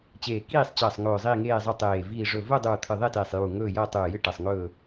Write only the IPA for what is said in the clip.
t͡ɕeː˨˩kiː˦˨sˤt͡ɕɐː˨˩sˤŋɵː˨˩ zˤiː˦˨ŋeː˦˨zˤɵ˦˨tˤeː˨˩ viː˨˩ʐɵ˨˩ vɵ˦˨dˤuː˨˩ t̪ʰɨ˨˩ðˤe˦˨teː˨˩sˤjuː˨˩ ŋɵː˦˨jɐː˦˨ tˤʉː˨˩jɨ˦˨ ʈɐ˨˩sˤŋɵː˦˨

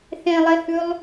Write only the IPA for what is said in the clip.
θẽlˠehʉlˠ

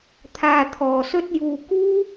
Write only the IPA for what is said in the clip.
t̪ʰaː˧t̪ʰɔː˨sɵ˥t̚juː˧ kuː˥

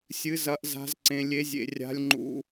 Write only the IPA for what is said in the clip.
sʲɨ˧˥zɐ˧˥ʔza̤˧˥zǀẽ˧ lʲe˧˥zʲḛ˧rʲa̤˧˥lʲ ŋ͡ǃṵ˧

